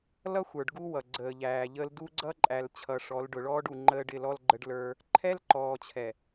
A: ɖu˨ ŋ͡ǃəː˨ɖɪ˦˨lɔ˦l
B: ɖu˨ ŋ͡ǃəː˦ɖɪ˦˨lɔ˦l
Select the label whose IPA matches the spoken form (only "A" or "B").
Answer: B